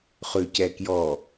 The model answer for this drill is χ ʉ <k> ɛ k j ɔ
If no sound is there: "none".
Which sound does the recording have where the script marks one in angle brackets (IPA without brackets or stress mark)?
c